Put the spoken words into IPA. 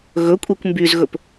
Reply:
ɣ ɵ kʷʼ e kʷ m b y z ɣ ɵ p

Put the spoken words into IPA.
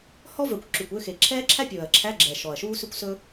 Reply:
h ɔ˥ v œ˨˩ kʷ ǁ ʉ˨˩ kʷ ø˧˥˧ x e˨˩ ǁʰ ɛː˥ ǁʰ æ˥ pʲ ɵː˨˩ ɐ̯ ǁʰ æ˧˥˧ ɡ͡ǁ ɛː˨˩ ʃ ɔ˨˩ ɐ̯ ʃ uː˥ s ʉ˥ kʷ s ɵ˥

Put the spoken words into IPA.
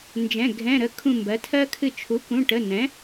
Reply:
n d͡ʒ ɛ̃˩˧˩ ɡʱ ɛ̃˩˧˩ ɾ ə˩˥ kʰ ũ˧˩ m b ɜ˩˥ tʰ ɜ˦˥ kʰ ɨ˧˩ t͡ʃʰ u˩˥ k ũ˩˧˩ ʈ ə˩˧˩ n ɛ̃˩˥

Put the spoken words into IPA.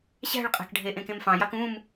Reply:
ɕ æ̤ ɭ qʼ æ̤ k ɖʱ e ʔ ẽ k ẽ m f ɑ̃ j ɑ k ũ m

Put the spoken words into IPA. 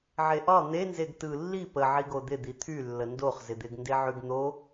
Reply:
ʕ e ʔ ɒ n̪ e n z e ɡ t ɯ lː i p ə ʕ i ɡ o d̪ ɪ d̪ i t̪ʰ y lː ə n d o χ z ɪ d̪ ɪ ɡ n d e ʕ y ɡ n̪ o

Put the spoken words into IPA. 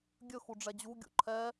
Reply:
ɡʲ ɵ x u ɖ͡ʐ ɛ d͡ʑ u ɡʲ ṵ ǃʰ ɛ

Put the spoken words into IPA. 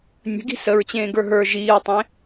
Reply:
nʲ ə̤ ɡ i̤ s ə ɹ t͡ɕ ẽː ɡ ə˞ ɦ ə˞ ʒ iː ɹ tˤ ẽ

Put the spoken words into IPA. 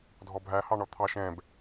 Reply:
dʱ ɔ bʱ æ h ɑ ɳ ɔ t̪ʰ ɑ ʃ ɛ̃ b

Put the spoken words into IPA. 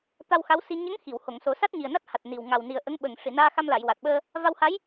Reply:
t̪ a˧ w x a˧˥ w s i˧ ɲ ə˧˥ ŋ x i˨˩˨ w h o˨˩˨ ŋ s o˨˩˦ s a˦˥ t̚ ɲ i˨˩ ə̯ n a˦˥ t̚ h a˨˩ t̚ n i˨˩ w ŋ a˨˩ w n i˨˩ ə̯ ʔ ə˧˥ ŋ ɓ ə˨˩ ŋ ʂ i˨˩˨ n aː˧ x a˧ m l a˨˩˨ j w a˨˩ t̚ ɓ əː˧ | v a˧ w h a˧˥ j

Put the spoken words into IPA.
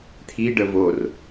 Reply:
t̪ʰ i ɖ ə v o r

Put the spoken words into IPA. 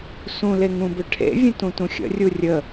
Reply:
s ũ l e ŋ ũ b ʏ ʈʰ ḛ vʲ ə̃ t ũ t ũ xʲ ə̰ rʲ u rʲ ə

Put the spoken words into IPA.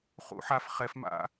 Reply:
χ ṵ ħ a f χ ɛ f m a̰

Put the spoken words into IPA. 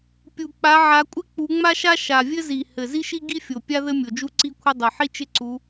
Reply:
pʲ u˨˩ k͡p a˨˦ ʕ a˨˦ kʷʼ ɪ˥ k͡p u˨˦ ŋ͡m a˥ ʃ a˥ ʃ a˨˩ vʲ ɘ˥ z i˨˩ h ɘ˨˩ z i˥ ʃ i˥ ɡ i˥ fʲ o˨˩ pʲ a˥ ð ɘ˥ mʲ o˨˩ d͡ʒ u˥ ǀ i˥ kʷʰ ɪ˥ dˤ ɘ˨˩ ħ i˥ t͡ʃ ɪ˥ ǀ u˨˦

